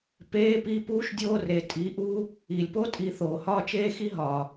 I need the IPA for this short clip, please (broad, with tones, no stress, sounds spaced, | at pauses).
p eː˧˥˧ p i˧˥˧ p uː˥ ʃ dʲ oː˥ r e˩ tʼ iː˨˦ ʔ uː˥ | iː˩ lʲ p oː˥ tʼ i˨˦ θ oː˩ h ɒː˥ t͡ʃ eː˥ x i˥ ɦ ɒː˩